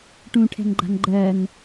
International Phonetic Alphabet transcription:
ʈ ũ ʈʰ ɛ̤ ŋ ɡ͡ǃ a̤ ŋ ɡ͡ǃ ɜ ŋ

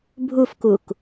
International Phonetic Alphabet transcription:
bʱ u f k u k

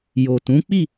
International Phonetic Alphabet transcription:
j o˨ t ũ˨˦ k͡p i˦˨

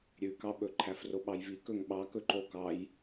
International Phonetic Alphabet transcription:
ɾʲ ʉ k ɑ ɓ ɵ ǃʰ æ f r o ɓ ɑ j v i k ɵ ŋ ɓ ɑ k ɵ ǃ o k ɑ j

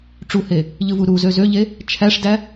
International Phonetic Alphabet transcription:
ʈ͡ʂ u h e | ʎ ɯ v u ɾ u z ø z ø ʎ e | t͡ʃʰ æ ʂ d æ

